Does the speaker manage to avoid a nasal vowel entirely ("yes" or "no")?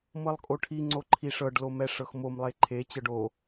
yes